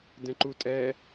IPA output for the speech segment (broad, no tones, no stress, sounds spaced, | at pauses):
d ɛ̃ ǃ u tʼ ɛ